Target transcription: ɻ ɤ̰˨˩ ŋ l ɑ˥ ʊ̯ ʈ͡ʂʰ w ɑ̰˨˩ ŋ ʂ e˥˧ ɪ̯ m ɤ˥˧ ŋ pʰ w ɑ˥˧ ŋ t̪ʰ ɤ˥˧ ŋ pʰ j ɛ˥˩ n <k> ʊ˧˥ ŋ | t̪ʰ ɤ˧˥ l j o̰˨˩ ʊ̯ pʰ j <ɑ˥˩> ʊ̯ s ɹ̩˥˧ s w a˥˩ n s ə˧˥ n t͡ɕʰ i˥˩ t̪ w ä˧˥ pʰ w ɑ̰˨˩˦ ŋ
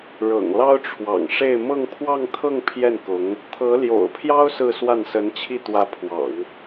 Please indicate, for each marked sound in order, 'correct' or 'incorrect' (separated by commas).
correct, incorrect